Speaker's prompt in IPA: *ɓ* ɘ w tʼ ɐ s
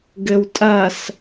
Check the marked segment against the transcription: incorrect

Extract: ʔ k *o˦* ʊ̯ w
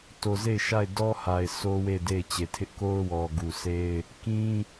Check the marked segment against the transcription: correct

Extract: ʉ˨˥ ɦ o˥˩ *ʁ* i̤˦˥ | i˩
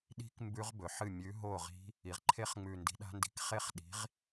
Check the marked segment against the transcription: correct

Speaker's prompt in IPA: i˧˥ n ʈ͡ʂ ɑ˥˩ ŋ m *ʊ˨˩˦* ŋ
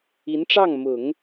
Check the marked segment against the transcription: correct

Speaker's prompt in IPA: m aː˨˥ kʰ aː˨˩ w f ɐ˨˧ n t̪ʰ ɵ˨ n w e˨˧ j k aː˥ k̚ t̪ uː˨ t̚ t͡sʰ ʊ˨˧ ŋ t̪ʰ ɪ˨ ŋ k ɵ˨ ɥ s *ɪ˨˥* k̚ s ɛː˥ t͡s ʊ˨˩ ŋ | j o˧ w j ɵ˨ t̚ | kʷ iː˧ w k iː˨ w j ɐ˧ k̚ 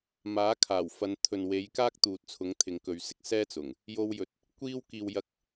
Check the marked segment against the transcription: incorrect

